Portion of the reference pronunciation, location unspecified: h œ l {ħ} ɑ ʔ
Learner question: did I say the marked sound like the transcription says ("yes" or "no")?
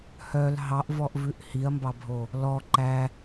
no